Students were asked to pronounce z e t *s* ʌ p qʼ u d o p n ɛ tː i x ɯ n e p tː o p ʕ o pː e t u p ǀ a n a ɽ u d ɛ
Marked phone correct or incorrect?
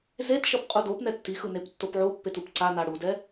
incorrect